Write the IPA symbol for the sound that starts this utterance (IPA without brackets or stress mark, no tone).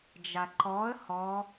d͡ʒ